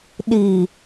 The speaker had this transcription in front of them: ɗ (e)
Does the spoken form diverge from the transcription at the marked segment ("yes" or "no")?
yes